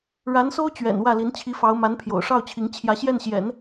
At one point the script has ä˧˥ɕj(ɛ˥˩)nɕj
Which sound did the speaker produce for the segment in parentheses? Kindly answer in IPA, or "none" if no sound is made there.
ɛ˥˩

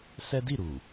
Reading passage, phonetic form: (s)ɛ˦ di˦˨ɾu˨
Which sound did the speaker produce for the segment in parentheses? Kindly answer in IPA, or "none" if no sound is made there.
s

